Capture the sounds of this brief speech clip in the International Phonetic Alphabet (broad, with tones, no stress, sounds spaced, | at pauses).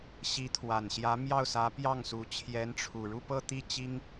ɕ i˧˥ t̪ʰ w a˨˩ n ɕ j ä˧˥ m j ɑ˥˩ ʊ̯ s ä˧˥ p j ɑ˥˩ ŋ s u˧˥ t͡ɕʰ j ɛ˧˥ n ʈ͡ʂʰ u˨˩ ɻ u˥˧ p ɤ˥˧ t̪ i˥˩ t͡ɕ i˥ ŋ